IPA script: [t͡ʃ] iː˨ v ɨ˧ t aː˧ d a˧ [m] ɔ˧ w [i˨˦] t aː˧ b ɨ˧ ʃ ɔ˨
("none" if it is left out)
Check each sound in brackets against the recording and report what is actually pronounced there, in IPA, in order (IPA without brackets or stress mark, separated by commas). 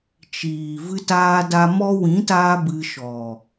t͡ʃ, m, ĩ˨˦